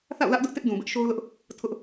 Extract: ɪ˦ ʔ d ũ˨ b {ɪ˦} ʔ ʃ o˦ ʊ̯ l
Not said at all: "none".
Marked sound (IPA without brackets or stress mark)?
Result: ɪ˦